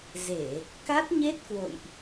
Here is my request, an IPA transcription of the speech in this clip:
ze˧˩˨ | ka˦˥t̚ɲe˦˥t̚kwo̰˧˨jʔ

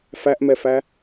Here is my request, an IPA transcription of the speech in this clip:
fæʔmɛfæ

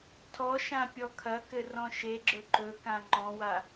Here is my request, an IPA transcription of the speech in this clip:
tʰɔʃã pʲɔkʰɐkɘ rɔ̃ʃeɡ͡ǁɵ ǃɵkã ŋ͡ǃɔ̃wa

